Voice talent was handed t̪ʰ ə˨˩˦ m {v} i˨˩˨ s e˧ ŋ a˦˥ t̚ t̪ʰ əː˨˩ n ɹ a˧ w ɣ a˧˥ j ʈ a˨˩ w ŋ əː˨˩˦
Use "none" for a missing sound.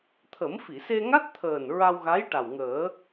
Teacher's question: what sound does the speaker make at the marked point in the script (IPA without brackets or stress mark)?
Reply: f